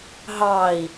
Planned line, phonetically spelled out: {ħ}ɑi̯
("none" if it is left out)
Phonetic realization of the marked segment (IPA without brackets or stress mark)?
ɦ